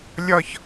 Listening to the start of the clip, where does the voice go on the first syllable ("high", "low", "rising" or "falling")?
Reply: high